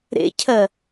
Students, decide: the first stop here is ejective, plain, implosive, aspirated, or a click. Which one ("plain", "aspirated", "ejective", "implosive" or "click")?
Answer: aspirated